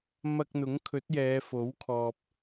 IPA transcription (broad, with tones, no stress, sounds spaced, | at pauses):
m ɐ˧ k̚ n̪ ʊ˨˥ ŋ kʰ ɵ˨˥ t̚ j ɛː˨˧ f o˨˥ w kʰ ɔː˨ p̚